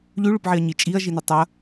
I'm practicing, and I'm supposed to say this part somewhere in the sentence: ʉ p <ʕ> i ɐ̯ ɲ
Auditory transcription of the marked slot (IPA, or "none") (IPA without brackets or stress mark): ʕ